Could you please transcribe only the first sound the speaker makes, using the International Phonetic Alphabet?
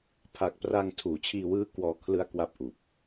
pʰ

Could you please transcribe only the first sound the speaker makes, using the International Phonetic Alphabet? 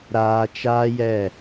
ɾ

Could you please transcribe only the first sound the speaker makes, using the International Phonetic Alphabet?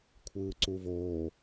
kʷʰ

